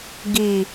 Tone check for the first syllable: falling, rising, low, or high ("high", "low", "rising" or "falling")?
low